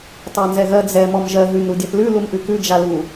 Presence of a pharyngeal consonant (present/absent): absent